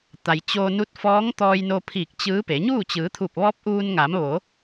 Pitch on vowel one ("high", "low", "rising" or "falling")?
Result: low